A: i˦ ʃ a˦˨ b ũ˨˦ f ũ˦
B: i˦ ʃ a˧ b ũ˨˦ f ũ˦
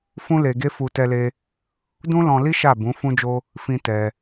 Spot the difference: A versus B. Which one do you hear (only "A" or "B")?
A